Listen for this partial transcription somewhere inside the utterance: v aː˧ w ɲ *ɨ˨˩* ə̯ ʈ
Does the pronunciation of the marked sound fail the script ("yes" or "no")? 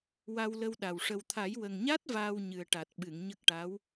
no